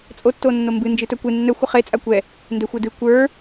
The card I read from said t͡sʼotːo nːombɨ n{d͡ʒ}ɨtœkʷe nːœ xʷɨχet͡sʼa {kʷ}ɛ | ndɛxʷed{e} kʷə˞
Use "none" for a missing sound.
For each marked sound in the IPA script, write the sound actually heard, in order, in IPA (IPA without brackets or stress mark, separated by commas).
d͡ʒ, kʷ, ɨ